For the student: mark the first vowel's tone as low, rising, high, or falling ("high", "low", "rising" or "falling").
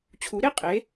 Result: rising